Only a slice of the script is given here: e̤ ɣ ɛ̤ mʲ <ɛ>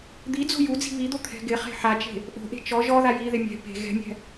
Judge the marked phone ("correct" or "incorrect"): incorrect